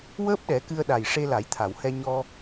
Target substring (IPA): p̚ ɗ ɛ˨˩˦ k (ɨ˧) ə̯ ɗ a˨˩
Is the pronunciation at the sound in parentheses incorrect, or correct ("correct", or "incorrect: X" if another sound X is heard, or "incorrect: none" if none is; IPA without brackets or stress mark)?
correct